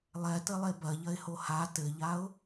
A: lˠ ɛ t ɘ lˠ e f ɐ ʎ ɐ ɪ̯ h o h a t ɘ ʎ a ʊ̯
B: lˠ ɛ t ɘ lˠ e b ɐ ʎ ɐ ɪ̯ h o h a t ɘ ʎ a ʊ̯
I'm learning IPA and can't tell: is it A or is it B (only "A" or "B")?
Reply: B